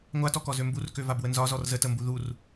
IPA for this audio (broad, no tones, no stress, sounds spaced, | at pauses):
ŋʷ a t ɔ k ɔ z ø m b u r k ø v a b w ə n z ɒ z ɔ r z ə t ə m b u ð u r